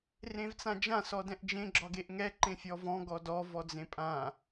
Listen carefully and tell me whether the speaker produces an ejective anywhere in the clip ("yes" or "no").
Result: yes